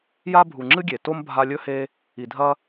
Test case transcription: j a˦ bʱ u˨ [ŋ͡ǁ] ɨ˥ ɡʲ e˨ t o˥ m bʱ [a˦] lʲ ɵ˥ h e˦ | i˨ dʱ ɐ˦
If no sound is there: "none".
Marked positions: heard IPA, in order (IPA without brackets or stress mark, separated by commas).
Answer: ŋ͡ǁ, a˦